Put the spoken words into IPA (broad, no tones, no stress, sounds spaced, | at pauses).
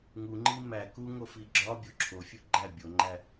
ŋ u ŋ͡ǃ i m æ k u ŋ o f i ɡ͡ǁ ɒ bʲ o ǁʰ o fʲ u ɡ͡ǃ æ bʲ o ŋ͡ǃ æ